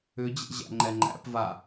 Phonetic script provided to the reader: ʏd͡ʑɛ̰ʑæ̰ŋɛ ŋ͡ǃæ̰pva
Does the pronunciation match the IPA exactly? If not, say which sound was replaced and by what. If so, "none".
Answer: ŋ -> ŋ͡ǃ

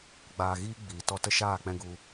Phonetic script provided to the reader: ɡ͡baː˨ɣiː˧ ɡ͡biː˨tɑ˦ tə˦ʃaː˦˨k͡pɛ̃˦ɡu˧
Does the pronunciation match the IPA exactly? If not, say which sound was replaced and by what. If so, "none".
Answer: ɑ˦ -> ɔ˦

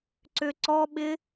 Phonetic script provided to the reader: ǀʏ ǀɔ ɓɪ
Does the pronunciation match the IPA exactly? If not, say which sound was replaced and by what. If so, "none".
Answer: none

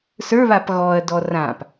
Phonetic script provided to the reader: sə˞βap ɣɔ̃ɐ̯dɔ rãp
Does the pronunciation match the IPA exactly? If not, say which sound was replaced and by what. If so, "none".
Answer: ɔ̃ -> ɔ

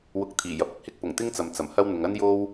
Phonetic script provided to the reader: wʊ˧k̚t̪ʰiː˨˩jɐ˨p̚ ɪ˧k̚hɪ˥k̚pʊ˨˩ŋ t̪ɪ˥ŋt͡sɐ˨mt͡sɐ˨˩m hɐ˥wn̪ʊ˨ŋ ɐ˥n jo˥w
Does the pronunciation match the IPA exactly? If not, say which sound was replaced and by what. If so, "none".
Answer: none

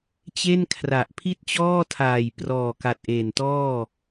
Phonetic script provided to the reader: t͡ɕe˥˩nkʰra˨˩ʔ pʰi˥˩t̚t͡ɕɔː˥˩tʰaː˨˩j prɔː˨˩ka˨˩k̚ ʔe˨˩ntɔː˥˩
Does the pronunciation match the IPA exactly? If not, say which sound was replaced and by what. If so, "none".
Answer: k̚ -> t̚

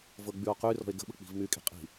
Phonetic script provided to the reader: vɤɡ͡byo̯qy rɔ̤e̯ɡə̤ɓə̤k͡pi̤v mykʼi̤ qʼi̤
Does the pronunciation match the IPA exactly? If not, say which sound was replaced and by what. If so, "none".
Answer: none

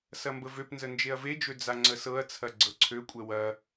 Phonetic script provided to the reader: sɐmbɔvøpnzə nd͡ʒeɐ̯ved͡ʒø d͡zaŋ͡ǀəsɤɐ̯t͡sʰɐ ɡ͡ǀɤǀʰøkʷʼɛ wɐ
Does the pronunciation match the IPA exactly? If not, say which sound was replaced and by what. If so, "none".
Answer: ɔ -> ə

